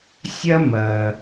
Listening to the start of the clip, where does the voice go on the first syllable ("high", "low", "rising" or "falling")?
high